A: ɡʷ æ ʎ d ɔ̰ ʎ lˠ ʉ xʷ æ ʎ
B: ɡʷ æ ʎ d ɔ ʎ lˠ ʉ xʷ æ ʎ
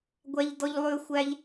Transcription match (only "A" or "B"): B